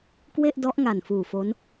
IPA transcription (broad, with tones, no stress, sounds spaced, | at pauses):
k w e˥˩ ʔ d ɔ˦˥ ʔ ŋ a˨˩ n f uː˨˩ f o˦˥ n